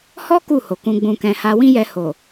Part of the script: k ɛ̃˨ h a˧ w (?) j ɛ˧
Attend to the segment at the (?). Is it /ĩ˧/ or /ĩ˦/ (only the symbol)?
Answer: ĩ˦